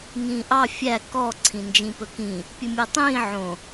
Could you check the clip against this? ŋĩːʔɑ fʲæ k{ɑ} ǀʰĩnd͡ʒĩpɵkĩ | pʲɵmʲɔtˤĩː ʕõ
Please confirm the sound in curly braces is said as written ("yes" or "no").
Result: no